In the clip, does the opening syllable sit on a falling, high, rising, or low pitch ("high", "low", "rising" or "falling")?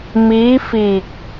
rising